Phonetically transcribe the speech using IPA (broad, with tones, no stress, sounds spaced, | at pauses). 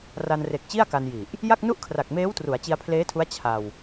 r a˧ n r e˨˩ k̚ t͡ɕ i˥˩ a̯ k a˧ n j i˨˩ ʔ | j a˥˩ k̚ n u˥˩ ʔ kʰ r a˨˩ k̚ m eː˦˥ w t r u˩˦ a̯ t͡ɕ i˧ a̯ pʰ l eː˦˥ tʰ u˦˥ a̯ t͡ɕʰ a˧ w